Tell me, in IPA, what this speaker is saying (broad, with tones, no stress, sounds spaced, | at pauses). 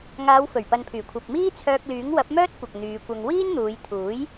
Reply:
ŋ aː˨˧ w f ɵ˨˩ ɥ p ɐ˨ n pʰ yː˨˩ kʷʰ ɐ˨ p̚ m iː˥ t͡sʰ œː˧ k̚ l yː˨˥ ŋ w ɐ˨˥ p̚ m œː˥ t̚ kʷ ɐ˨ k̚ n̪ yː˨˧ kʷ ɐ˧ ŋ w iː˥ n n̪ uː˨˧ j t̪ʰ uː˨˥ j